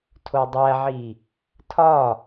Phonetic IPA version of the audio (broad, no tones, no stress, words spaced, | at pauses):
tʰodˤæʕi | tʰɒ